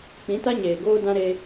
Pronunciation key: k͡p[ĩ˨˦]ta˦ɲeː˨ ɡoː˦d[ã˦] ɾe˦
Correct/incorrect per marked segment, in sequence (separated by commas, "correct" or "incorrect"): correct, correct